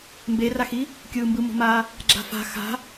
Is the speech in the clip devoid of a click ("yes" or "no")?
no